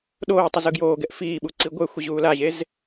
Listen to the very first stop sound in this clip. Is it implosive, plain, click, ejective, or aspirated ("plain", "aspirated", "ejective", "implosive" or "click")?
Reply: implosive